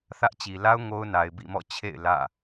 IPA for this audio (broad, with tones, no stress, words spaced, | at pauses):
θä˦ʔt͡ɕi˨ la˦ʊ̯ ŋo˦ʊ̯na˨ɪ̯ bḭ˦˨mɔ̰˦˨ t͡ɕʰḛ˦˨ɪ̯ lä̰˦˨